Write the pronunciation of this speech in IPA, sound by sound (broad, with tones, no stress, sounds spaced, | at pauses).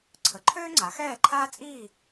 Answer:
ǀʰ ə˩˥ ǃʰ øː˥ ŋ͡ǀ a˩˥ x ɛː˥˨ ǃʰ aː˥ t͡sʼ iː˥˨